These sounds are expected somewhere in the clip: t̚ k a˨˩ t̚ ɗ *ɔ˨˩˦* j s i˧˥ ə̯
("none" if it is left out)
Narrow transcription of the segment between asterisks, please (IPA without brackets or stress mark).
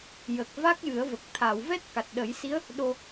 ə˨˩˦